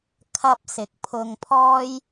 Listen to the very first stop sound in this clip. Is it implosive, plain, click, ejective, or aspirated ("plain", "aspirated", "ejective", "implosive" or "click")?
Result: aspirated